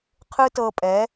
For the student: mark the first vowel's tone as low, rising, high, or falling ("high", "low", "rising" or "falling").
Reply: high